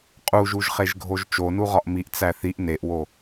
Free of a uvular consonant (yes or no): no